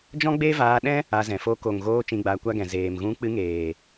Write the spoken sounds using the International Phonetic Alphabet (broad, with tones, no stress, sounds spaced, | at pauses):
d͡ʒ ɔ̃˦ ɡ͡b e˦ v aː˧ ɗ ɛ̃˦ | a˧ z ɛ̃˨ f o˧ k o˨ ŋ ɣ oː˧ t͡ʃ ĩ˧ ɡ͡b aː˧ kʷ a˦ ɡ ɛ̃˨ z eː˨ m ɣ ũ˧ k͡p ɨ˧ ŋ eː˨